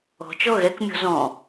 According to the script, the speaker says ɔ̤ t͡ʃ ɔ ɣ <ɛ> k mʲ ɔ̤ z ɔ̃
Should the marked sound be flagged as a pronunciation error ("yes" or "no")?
no